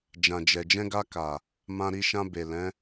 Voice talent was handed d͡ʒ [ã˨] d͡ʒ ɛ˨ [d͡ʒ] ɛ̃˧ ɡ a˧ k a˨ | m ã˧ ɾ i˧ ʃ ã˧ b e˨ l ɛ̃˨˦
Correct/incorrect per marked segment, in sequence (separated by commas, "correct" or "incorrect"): correct, correct